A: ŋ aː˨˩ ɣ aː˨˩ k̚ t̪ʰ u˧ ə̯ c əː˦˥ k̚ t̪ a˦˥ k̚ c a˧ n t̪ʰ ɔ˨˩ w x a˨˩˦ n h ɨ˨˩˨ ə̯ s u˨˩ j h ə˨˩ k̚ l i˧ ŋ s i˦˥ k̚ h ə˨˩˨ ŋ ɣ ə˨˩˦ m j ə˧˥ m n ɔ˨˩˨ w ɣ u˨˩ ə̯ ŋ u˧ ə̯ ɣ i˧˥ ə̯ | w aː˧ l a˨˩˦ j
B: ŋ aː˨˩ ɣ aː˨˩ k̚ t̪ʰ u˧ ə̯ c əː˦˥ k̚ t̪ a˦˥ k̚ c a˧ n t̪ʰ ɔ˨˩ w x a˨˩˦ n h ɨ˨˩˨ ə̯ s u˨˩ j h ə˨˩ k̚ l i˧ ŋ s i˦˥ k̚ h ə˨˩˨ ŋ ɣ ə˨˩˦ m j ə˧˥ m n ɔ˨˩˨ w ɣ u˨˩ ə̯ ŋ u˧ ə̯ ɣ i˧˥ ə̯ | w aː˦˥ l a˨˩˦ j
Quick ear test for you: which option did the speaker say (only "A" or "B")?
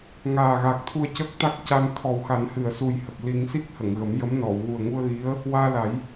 A